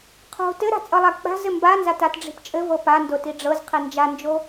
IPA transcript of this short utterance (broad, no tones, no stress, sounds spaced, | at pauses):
qʰ o̤ t ɘ ɾ a̤ t͡sʼ ɤ lˠ a k͡p a̤ z ɘ m b a n z a t a t ɖ͡ʐ i̤ p t͡ʃʼ ɘ v ɤ p a n d o t i ɖ͡ʐ ɤ z qʰ i n d͡ʒ a n d͡ʒ o